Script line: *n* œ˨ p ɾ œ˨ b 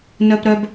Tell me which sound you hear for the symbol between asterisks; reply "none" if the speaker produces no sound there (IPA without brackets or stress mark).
n